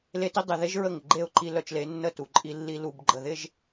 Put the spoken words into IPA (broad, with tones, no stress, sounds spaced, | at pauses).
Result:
l e˦ t i˦ dˤ ɪ˨ ð e˦ ʒ ɹ ə˦˨ ŋ ɪ˨ ɡ͡ǃ e˦˨ ʊ̯ ǃ i˦ l œ˨ t͡ʃ l e˨˦ nː ə˦˨ t u˨ ǃʼ i˦ lː i˦ l u˨ b ɡ͡ǃ ə˨ ð ɪ˦ ʒ